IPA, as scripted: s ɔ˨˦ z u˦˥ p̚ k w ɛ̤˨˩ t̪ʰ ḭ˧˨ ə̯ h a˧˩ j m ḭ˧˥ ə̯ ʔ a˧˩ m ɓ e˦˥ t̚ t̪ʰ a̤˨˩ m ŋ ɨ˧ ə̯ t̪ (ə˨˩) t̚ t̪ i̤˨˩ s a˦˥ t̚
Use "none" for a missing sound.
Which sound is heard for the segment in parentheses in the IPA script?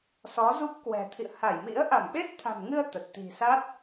ə˨˩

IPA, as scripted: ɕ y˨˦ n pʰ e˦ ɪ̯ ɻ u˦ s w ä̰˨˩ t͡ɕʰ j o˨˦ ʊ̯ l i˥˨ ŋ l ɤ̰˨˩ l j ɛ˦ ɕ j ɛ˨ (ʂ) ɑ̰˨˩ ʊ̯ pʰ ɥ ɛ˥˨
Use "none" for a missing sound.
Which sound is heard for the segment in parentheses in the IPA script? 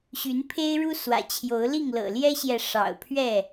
ʂ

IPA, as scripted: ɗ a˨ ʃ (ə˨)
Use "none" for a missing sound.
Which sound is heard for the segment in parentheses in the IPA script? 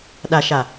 a˨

